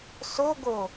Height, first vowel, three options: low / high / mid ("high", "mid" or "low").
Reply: mid